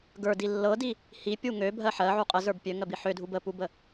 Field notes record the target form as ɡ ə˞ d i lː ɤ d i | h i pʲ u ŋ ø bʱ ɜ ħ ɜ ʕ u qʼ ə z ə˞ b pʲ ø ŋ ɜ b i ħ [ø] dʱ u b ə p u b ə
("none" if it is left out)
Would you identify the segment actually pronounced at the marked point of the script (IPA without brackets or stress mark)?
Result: ø